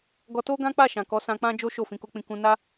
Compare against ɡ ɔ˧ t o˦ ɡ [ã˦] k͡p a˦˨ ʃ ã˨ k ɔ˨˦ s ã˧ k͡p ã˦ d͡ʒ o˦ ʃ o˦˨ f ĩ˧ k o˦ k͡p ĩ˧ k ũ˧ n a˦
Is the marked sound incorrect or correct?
correct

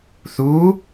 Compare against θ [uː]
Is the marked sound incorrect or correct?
correct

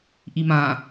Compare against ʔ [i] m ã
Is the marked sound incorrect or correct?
correct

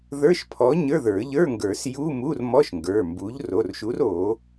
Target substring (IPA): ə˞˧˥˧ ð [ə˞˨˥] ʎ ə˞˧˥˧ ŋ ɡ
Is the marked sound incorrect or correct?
incorrect: ə˞˨˩˦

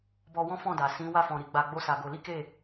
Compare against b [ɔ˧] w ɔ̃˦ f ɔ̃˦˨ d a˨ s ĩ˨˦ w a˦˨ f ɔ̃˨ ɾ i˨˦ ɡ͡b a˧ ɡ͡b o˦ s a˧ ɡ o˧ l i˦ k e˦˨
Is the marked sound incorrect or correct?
correct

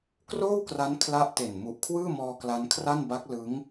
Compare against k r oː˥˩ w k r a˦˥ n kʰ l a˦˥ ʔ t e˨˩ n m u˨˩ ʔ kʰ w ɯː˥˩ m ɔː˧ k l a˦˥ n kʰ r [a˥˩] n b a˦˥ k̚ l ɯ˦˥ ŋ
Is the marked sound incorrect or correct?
correct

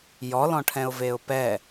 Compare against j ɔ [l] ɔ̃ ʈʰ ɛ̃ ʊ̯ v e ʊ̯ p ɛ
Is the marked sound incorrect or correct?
correct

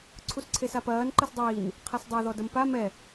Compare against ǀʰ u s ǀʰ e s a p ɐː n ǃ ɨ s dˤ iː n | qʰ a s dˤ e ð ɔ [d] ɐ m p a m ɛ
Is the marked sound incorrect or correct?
correct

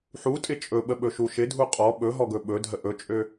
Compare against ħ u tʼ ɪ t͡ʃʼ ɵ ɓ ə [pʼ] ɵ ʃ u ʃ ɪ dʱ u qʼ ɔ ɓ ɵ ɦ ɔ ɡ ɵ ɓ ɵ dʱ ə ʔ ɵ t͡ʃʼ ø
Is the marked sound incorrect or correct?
incorrect: ɓ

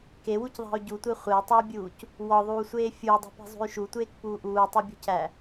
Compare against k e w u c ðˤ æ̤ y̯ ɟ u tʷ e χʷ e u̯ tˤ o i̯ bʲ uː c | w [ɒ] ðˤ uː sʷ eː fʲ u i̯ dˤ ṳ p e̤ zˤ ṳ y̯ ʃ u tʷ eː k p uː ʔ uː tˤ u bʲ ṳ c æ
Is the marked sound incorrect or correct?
correct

